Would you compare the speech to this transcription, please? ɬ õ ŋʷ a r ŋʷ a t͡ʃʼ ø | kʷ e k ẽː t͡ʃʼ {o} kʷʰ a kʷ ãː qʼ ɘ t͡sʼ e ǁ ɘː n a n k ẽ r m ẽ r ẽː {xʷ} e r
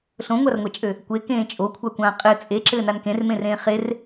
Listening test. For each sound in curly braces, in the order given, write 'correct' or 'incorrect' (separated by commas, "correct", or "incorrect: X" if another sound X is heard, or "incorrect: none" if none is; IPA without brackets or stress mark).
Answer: correct, incorrect: χ